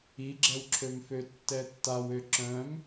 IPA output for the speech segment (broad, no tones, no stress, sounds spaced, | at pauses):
i ɡ͡ǁ ɛ w ǁʰ ø m f ø tː ɛ tː a w ø ǁ œ̃ m